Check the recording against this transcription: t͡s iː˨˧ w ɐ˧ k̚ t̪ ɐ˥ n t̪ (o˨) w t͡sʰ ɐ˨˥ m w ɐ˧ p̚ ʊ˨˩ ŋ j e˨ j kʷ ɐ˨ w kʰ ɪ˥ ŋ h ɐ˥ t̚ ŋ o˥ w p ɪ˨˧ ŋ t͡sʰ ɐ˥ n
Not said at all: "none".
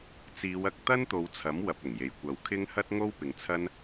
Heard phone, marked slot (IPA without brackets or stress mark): o˨˧